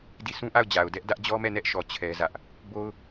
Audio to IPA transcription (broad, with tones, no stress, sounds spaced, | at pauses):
d i˦˨ sʰ ũ˦ ʔ a˦˨ ʊ̯ d͡ʑ a˨ ʊ̯ d ɛ˦ ʔ d ä˦ ʔ d͡ʑ ɔ˦ m ɛ˦˨ n ɛ˦ ʔ ʃ ɔ˨ t͡ɕʰ ɛ˦ z ä˦ ʔ | b o˦ ʊ̯